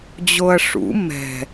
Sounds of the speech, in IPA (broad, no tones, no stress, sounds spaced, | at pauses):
d͡ʑ o ɐ̯ ʂ ṵ m ɛ̤